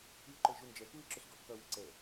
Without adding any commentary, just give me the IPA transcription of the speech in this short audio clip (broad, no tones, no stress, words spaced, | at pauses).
iʊ̯ǃəɪ̯ʒund͡ʒɛ kuɪ̯ǁʊɬɡɔʔkʌ wəǀɛ